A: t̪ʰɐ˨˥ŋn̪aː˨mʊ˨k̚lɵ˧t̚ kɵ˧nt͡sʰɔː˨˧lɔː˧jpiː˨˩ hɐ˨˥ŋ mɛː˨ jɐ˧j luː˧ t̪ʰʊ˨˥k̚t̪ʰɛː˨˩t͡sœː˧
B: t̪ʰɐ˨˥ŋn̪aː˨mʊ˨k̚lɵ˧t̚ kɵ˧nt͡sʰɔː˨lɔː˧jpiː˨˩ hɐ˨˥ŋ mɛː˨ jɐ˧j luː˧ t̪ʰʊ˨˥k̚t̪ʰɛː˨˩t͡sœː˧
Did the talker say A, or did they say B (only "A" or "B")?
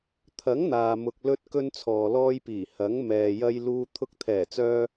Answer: B